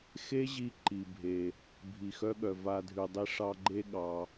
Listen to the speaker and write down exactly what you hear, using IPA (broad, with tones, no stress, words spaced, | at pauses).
xe˦ʑi˧ ǃi˨bʱe˨ | bʱi˨xœ˦ɠœ˨ va˧ dʱʉ˨dˤi˧ʂɑ˧ɡ͡ǃe˦ ɠɑ˧